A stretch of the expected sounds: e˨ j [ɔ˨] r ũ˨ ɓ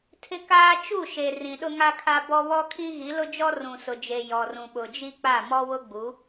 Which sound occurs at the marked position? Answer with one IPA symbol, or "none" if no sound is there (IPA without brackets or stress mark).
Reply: ɔ˨